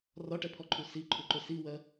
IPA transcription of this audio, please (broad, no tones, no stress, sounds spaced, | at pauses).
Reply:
r ɒ ʈ ɛ pʰ ɔ ǃʰ u s i ǃʰ u ǃ ʊ s i w ɜ